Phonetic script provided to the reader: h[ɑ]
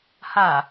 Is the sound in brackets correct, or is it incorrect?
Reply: incorrect